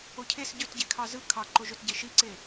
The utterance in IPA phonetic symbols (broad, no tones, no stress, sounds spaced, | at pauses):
o cʰ e s ɟ ø t ɟ e kʰ ɑ z ɯ kʰ ɑ ǃ o ʒ ø t ɟ e ʃ i ǀ e